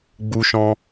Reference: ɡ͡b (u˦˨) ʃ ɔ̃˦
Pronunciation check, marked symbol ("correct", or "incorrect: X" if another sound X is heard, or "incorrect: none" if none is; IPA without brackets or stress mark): incorrect: u˦